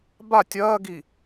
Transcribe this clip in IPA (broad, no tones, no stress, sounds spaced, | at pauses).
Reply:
b a tʲ ɐː ɡ i